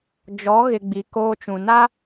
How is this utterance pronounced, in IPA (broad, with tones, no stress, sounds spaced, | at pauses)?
d͡ʒ ɔ˨˦ ɣ ɪ˨ ɡ͡b i˨ k oː˦ t͡ʃ ũ˨ n a˦